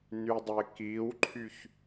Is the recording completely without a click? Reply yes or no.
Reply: no